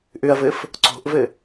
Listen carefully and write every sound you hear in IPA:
ʔ ʏ ɐ̯ v ɘ f | ǀ o̤ ʔ v ɘ

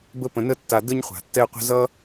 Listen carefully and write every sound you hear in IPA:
b ə˦ p ə̃˨ n ə˦ tː a˨ d ə˥ ɲ χʷ a̤˩ tː ɛ˦ qʷ ə̤˦ z ʌ˥

